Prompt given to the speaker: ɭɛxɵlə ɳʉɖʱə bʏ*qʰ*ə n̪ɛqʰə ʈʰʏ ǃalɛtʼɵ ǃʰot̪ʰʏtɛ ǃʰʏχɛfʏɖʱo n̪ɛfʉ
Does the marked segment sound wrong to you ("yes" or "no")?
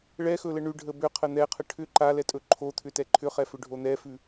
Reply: no